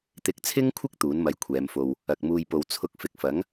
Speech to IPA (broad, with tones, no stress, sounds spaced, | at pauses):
t̪ ɪ˨ k̚ t͡sʰ ɪ˥ ŋ kʷʰ ɪ˥ k̚ t̪ uː˨˥ n m ɐ˧ j kʷʰ ɛː˨˧ m f o˧ w | ɐ˨ k̚ m uː˧ j p o˧ w t͡sʰ ʊ˥ k̚ f ɪ˧ k̚ f ɐ˨˥ ŋ